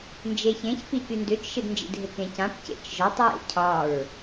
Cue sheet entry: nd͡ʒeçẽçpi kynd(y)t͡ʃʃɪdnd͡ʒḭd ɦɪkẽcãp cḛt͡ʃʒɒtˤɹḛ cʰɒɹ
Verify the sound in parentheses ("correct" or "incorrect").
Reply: incorrect